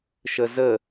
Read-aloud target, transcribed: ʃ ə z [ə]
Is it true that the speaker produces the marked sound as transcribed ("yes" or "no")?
yes